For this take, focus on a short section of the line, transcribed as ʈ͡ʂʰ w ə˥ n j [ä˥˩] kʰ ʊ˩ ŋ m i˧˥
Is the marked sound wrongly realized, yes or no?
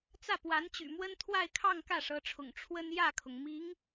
no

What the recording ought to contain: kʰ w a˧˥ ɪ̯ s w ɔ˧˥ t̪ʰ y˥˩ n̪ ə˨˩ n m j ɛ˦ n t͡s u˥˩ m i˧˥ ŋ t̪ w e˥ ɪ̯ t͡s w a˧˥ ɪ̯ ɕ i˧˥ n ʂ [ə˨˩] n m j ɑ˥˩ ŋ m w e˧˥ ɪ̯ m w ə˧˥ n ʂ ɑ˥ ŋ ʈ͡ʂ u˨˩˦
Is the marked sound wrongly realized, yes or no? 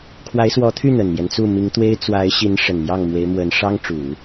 no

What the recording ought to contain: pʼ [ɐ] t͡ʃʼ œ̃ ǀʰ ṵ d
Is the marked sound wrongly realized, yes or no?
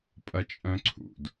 no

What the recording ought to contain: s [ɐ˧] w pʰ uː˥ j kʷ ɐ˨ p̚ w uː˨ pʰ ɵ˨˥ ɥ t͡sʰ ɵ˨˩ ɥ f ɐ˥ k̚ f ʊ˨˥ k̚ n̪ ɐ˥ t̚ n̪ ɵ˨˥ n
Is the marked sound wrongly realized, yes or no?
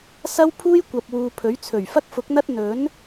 yes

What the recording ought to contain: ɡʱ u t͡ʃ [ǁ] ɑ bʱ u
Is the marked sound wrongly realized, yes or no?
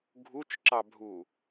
no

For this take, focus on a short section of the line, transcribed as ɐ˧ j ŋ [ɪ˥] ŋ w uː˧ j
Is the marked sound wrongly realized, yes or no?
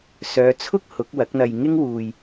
no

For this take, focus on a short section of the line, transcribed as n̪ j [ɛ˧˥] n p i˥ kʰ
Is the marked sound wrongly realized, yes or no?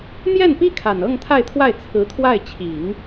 yes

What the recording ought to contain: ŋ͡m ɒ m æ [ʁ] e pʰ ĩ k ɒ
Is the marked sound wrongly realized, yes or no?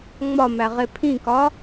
no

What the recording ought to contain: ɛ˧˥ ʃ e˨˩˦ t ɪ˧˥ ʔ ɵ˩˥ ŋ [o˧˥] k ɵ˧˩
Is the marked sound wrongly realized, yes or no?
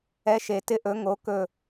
yes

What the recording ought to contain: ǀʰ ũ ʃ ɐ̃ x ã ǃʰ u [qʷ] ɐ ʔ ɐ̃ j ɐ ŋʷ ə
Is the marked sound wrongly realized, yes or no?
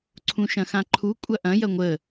yes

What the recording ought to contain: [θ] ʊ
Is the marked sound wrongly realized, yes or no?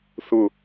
no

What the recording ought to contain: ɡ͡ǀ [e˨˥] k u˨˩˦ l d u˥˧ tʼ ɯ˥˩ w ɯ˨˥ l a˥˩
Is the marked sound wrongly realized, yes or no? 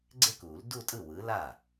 yes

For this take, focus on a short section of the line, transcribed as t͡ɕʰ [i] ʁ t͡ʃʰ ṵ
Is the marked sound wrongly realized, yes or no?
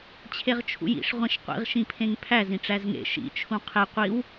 yes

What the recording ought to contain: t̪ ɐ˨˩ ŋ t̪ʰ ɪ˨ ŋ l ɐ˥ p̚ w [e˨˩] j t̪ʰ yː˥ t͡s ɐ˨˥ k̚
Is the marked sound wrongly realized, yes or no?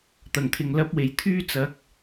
no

